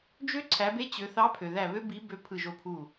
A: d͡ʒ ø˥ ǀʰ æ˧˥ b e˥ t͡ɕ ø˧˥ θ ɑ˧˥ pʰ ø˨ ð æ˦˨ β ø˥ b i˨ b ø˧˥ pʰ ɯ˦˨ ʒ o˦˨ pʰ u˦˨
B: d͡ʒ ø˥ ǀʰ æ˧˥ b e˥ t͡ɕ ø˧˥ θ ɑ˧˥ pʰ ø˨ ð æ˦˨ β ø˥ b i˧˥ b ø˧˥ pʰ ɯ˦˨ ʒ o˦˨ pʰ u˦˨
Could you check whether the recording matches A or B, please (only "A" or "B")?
B